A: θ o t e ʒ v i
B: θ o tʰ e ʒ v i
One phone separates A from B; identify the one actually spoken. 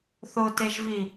A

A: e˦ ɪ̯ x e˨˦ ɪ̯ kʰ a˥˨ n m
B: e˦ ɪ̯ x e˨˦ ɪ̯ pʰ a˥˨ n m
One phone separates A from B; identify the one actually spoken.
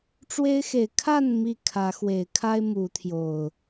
A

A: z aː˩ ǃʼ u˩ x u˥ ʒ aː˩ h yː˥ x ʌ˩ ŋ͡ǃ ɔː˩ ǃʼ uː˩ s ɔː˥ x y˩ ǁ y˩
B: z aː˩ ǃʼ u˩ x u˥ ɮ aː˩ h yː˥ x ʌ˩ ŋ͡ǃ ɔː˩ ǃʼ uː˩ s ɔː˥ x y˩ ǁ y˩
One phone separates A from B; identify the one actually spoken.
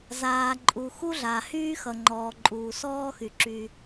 B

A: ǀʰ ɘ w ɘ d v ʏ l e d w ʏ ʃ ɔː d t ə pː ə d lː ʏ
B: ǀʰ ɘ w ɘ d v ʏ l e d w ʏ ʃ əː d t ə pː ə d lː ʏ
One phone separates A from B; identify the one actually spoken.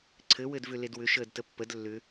B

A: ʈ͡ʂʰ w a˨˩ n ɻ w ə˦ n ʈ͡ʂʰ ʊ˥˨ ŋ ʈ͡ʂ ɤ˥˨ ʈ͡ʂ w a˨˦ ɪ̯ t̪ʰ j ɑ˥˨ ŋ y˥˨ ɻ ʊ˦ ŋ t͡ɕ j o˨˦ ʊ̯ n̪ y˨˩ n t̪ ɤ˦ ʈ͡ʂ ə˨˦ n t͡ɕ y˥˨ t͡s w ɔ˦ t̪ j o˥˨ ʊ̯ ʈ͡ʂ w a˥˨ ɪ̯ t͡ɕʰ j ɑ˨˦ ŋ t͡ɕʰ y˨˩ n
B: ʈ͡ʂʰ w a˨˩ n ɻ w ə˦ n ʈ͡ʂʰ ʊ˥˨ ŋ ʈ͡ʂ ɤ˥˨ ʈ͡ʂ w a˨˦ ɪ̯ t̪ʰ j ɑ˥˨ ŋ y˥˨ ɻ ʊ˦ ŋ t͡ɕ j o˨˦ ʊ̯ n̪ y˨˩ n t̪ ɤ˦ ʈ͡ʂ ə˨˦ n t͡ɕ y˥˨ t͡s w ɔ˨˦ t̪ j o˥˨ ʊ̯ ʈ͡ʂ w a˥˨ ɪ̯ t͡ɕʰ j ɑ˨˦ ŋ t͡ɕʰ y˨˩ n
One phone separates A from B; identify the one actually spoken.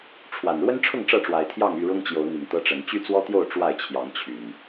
A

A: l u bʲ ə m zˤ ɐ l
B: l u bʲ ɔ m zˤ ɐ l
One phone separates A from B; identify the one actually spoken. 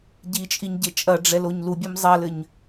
B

